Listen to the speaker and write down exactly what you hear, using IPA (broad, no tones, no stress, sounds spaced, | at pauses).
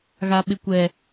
ɣ a ɓ ɪ kʷ ɛ